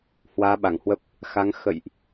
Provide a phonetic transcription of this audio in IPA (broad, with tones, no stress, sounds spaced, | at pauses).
h w aː˨˦ ɓ a˧˩ ŋ h w ə˦˥ p̚ | x a˨˦ ŋ x ə̰˧˨ j ʔ